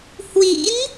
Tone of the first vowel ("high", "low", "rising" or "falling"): rising